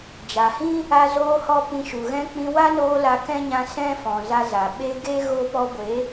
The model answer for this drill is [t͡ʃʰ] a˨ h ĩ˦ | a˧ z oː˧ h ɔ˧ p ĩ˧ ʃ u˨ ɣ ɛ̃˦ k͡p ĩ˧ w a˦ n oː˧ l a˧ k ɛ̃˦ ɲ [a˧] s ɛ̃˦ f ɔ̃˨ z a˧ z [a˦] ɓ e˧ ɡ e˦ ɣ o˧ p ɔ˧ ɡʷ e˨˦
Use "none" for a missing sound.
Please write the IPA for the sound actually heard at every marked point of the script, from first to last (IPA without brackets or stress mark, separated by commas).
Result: d͡ʒ, ã˧, a˨